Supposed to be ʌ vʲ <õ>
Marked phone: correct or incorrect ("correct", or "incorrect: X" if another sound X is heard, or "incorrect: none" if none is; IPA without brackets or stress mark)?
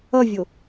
incorrect: o